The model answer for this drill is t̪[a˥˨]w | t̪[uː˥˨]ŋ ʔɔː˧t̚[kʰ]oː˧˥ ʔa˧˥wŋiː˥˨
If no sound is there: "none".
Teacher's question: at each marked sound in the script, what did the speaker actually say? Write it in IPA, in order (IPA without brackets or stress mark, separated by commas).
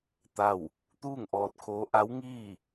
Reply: a˥˨, uː˥˨, kʰ